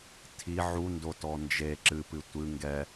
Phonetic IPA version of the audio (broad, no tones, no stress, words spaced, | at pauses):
tʰi ʕundo tɔnd͡ʒe ǁɨpɨ tʷɨ ŋɡɛ